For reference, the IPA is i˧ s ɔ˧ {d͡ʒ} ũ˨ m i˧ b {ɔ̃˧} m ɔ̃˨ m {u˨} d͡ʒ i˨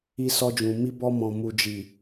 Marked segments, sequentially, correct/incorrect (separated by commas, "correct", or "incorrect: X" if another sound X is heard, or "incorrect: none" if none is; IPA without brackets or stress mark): correct, incorrect: ɔ˧, correct